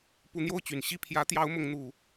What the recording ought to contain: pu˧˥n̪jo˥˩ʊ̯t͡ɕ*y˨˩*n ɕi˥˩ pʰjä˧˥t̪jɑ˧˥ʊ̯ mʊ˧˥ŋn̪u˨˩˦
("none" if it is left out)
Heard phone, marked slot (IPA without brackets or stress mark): y˨˩